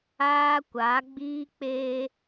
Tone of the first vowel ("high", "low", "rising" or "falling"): high